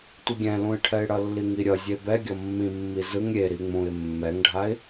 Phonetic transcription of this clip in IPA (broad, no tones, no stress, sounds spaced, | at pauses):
tʷ ʌ ɡʲ ɛ̃ l ũ ɪ̯ ʈʰ ɛ ɪ̯ ɽ ʌ lː i ŋ i ɾʲ ʌ zʲ e b ɛ ɡʲ ʌ mː ĩ mː i z ɯ ŋ ɾʲ e ɾ i ŋ͡m ũ ɪ̯ mː ɛ ŋ ɖʱ a ɪ̯